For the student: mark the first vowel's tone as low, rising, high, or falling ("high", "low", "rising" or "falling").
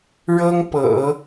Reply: high